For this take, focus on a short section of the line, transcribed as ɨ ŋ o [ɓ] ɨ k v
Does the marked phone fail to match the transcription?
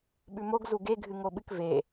no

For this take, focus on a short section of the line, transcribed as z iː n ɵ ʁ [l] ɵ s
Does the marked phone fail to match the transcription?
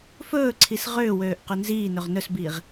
yes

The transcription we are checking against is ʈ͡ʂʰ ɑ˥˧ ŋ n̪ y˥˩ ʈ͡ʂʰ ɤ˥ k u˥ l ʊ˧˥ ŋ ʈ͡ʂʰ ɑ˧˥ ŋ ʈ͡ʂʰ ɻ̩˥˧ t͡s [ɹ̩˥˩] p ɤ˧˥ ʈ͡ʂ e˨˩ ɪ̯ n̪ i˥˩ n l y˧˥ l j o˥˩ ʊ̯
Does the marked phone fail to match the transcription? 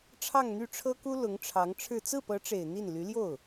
no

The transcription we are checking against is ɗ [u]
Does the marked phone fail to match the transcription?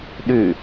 yes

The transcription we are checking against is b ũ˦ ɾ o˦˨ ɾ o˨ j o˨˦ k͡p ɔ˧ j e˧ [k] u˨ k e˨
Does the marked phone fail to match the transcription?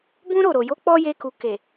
no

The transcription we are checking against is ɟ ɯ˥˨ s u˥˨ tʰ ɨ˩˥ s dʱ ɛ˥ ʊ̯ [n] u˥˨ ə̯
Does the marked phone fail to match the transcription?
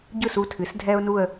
no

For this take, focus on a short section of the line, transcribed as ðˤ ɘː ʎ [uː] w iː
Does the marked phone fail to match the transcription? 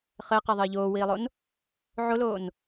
yes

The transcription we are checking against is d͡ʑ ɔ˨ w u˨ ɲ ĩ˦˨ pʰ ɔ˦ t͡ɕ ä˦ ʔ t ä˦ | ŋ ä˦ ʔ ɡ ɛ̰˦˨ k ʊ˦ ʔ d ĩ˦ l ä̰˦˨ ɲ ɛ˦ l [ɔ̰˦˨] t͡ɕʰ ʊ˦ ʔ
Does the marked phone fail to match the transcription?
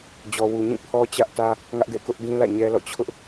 no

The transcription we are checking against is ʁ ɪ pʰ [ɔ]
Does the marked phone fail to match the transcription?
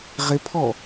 no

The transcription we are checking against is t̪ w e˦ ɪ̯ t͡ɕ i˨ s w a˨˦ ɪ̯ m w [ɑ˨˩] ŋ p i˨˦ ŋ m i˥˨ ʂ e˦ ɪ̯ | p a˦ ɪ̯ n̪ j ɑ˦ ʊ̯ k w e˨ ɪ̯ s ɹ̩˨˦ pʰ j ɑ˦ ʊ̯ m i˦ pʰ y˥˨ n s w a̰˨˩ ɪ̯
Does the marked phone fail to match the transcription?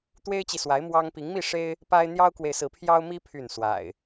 yes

